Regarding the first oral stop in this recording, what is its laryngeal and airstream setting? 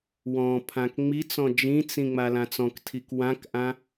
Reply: aspirated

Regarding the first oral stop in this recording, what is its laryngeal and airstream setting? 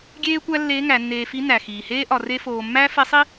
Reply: plain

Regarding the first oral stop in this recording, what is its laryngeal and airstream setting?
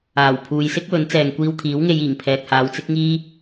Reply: aspirated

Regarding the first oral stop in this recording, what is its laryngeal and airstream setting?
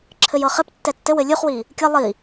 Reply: click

